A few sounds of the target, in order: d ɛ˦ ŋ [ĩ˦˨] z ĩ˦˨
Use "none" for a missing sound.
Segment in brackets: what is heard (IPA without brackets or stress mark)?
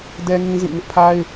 ĩ˦